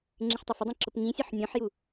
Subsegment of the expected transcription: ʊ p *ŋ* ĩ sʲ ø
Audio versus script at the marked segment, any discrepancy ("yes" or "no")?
no